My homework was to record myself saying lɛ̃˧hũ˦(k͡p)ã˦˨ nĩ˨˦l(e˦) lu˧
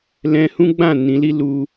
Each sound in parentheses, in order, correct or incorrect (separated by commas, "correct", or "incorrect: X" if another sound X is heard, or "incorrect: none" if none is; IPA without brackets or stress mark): incorrect: ɡ͡b, incorrect: i˦